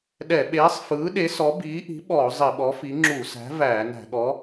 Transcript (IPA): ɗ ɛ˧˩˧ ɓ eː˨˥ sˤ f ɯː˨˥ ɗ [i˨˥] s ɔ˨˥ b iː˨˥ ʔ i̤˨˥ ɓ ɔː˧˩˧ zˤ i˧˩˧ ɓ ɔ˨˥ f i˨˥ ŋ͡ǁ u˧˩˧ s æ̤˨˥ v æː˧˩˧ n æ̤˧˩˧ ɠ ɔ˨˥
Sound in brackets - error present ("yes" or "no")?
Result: yes